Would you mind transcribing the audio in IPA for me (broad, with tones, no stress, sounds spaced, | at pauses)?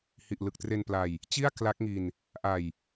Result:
h i˨˩ ʔ l ɯ˨˩ k̚ t r e˧ n p l a˧ j | t͡ɕ i˥˩ a̯ k l a˦˥ k̚ ŋ i˧ n | ʔ a˧ j